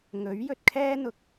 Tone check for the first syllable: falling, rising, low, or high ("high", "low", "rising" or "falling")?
rising